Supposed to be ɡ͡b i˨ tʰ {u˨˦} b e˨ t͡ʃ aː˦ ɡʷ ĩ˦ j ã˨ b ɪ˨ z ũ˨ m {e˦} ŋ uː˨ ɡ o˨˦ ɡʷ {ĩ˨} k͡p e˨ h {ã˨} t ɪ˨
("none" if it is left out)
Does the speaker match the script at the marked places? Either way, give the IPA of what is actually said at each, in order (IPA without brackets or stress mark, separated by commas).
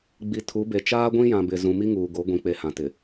u˨˦, i˦, ĩ˨, ã˨